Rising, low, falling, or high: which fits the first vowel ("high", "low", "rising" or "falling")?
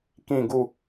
falling